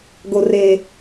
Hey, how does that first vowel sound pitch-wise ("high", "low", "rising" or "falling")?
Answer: low